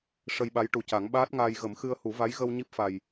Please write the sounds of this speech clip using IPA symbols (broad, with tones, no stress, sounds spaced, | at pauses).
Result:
ʂ ə˧ j ɓ a˧˥ j ʈ u˨˩ c a˨˩˦ ŋ ɓ aː˦˥ t̚ ŋ aː˧ j ɣ ə˨˩˦ m x ɨ˧ ə̯ h u˨˩˦ v a˧˥ j ɣ ə˧ w ɲ i˦˥ p̚ f a˨˩ j